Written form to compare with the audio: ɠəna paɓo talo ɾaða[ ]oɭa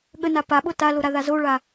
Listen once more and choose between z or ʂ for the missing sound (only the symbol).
z